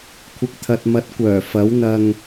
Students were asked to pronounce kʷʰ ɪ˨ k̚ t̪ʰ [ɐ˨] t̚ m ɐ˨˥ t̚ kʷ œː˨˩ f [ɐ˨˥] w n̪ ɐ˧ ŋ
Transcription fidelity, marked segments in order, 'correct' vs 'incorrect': correct, correct

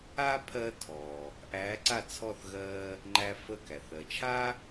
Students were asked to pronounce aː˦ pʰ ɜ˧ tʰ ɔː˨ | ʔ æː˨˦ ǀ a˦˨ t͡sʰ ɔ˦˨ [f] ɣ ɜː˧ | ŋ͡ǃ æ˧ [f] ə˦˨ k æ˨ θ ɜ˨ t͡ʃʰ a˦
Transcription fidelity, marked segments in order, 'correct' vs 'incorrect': incorrect, correct

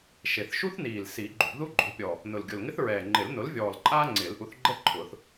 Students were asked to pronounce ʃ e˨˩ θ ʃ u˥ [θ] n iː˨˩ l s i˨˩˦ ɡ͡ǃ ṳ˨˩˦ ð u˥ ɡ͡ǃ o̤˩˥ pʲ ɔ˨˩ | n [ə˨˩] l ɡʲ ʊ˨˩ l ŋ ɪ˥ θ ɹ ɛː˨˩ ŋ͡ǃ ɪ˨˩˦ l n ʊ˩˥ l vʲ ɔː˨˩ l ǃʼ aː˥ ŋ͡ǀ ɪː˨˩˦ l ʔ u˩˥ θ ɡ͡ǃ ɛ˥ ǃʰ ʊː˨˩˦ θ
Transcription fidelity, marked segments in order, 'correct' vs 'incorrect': correct, incorrect

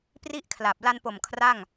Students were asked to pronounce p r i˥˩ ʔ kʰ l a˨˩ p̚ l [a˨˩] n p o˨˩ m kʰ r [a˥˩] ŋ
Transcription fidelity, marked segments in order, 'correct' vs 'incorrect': incorrect, correct

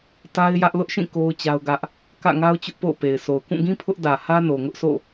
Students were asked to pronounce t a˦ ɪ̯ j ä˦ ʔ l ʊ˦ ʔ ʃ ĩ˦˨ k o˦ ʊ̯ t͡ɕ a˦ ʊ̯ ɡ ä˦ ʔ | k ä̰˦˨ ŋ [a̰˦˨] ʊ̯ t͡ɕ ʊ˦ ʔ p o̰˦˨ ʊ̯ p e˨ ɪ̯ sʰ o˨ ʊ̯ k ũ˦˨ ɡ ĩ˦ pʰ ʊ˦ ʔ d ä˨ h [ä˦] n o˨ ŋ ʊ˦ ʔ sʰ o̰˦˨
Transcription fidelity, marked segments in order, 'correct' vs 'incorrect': incorrect, correct

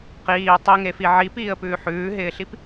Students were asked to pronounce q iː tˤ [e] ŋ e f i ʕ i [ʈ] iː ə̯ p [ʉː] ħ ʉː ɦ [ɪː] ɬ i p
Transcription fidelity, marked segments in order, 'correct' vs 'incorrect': incorrect, incorrect, correct, correct

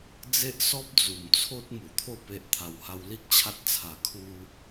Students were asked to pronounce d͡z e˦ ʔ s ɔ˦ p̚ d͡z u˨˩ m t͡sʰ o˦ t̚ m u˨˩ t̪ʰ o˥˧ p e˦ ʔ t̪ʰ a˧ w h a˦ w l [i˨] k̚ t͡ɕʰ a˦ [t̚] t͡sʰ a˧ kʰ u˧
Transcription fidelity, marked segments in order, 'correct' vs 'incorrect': incorrect, correct

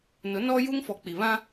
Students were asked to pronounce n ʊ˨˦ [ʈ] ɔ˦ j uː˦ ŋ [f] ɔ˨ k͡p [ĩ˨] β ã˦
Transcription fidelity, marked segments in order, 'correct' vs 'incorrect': incorrect, correct, incorrect

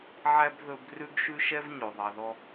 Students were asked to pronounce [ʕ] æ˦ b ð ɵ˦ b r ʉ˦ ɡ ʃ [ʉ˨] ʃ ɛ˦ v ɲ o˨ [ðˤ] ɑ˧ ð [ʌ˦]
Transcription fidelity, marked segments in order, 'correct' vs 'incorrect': correct, incorrect, correct, incorrect

